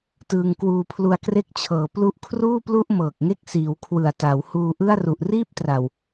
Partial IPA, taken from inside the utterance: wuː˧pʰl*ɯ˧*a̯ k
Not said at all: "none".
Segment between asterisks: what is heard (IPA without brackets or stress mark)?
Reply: u˧